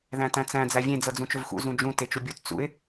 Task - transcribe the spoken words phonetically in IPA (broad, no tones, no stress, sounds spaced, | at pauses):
ð æ̃ t æ̃ t͡s æ̃ d͡z æ vʲ ẽ d͡z ɤ d͡z ũ t͡ʃ ɵ v x ṵ z ũ d͡ʒ ũ t e t͡ʃ u bʲ u t t͡s ṵ ɪ̯